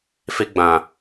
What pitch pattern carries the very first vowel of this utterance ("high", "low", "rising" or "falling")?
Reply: high